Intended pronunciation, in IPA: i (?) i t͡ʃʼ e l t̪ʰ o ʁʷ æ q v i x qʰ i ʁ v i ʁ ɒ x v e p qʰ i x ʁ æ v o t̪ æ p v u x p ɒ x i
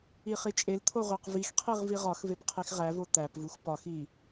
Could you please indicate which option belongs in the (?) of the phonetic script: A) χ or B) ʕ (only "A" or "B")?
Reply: A